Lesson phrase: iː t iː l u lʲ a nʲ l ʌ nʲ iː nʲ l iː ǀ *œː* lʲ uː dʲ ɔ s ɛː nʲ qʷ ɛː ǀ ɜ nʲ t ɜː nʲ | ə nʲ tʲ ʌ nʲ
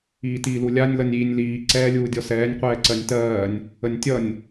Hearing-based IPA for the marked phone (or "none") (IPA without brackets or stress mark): ɛː